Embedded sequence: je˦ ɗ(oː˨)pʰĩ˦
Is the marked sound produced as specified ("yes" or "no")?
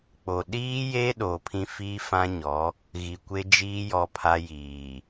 yes